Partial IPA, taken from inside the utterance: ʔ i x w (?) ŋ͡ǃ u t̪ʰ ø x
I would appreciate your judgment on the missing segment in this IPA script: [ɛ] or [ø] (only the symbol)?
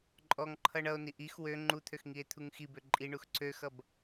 ø